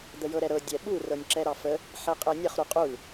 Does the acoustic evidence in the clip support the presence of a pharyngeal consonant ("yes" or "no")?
yes